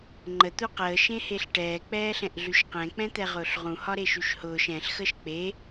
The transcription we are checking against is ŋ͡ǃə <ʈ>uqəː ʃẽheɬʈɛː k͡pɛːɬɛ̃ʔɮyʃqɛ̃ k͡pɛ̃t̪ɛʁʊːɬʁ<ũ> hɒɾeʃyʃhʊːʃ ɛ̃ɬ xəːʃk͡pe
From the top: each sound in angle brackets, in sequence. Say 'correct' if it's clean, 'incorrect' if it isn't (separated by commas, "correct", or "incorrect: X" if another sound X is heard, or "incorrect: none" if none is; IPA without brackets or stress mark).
incorrect: t̪, correct